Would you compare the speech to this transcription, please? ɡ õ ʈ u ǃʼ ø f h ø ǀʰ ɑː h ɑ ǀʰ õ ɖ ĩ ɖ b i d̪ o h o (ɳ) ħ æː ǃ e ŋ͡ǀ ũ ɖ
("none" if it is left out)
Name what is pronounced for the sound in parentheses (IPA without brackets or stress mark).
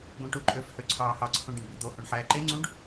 ɳ